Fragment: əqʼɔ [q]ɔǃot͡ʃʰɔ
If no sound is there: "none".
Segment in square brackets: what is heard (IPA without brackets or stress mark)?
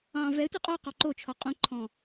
q